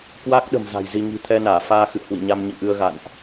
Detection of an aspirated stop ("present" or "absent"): present